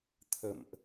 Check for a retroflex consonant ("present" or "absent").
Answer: absent